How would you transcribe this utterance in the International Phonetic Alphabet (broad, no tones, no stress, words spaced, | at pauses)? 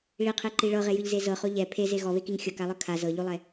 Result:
ɭiqʰeǃi ɭɤʁejɯʎze zɤχo ʎɛ pʰeze ɣɔβekiŋ xʲɤkalˠɯ kʰa zɤʎulˠɛ